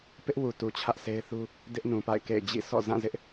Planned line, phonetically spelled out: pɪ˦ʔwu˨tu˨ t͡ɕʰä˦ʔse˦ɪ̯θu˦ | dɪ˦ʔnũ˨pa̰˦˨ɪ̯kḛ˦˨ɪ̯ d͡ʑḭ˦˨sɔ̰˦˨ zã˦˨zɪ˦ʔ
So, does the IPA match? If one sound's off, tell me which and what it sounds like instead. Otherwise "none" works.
none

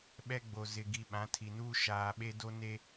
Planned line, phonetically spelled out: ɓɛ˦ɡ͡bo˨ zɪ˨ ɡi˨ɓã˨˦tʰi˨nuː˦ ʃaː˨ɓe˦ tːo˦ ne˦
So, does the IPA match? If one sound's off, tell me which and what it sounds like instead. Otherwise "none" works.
tː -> d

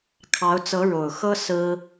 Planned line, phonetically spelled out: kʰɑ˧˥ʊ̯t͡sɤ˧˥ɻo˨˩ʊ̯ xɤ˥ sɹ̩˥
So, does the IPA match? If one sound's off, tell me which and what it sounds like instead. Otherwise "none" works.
none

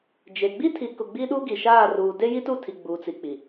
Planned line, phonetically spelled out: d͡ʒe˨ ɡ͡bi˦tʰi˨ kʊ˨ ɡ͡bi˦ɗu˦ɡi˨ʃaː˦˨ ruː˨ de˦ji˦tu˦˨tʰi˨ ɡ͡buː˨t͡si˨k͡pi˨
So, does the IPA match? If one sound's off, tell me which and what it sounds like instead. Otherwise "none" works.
none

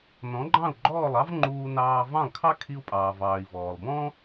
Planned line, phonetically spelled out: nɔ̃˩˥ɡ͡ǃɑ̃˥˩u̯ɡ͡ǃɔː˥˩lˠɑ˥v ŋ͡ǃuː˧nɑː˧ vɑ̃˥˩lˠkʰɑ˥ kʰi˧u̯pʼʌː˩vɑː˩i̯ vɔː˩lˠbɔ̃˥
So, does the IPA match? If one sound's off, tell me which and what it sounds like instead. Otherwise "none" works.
ʌː˩ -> ɑː˩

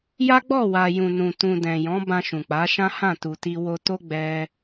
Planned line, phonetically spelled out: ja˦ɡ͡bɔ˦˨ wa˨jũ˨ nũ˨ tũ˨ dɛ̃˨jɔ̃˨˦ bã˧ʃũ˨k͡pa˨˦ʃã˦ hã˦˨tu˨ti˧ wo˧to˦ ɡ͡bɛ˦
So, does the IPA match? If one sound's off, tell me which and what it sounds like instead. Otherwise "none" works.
none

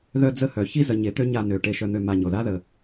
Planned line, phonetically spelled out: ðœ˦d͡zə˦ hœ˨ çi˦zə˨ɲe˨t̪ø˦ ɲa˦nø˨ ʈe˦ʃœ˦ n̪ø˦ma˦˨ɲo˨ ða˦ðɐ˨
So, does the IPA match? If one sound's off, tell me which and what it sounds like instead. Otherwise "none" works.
ɐ˨ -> ə˨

